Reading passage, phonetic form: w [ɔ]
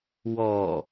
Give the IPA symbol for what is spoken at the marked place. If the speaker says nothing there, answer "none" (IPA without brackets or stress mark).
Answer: ɔ